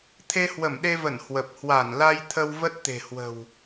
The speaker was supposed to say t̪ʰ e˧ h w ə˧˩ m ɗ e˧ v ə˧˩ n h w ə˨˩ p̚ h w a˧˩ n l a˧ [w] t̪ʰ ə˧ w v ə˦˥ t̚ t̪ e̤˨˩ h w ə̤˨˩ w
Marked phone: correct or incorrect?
incorrect